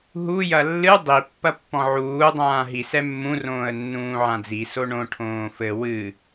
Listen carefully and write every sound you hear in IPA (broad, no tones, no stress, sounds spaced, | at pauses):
ɦ u j ɐ lː ɨ dˤ i pː ɐ pː ɔ̃ ʕ uː dˤ ãː ɦ i s ɛ mː ũ r õː ə̯ nː ũː ʕ ã d͡z i s o ɳ õ ʈʰ õː f ɘ w ɨ